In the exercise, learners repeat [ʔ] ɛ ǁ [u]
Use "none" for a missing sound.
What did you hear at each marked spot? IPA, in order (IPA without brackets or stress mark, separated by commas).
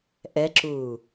ʔ, uː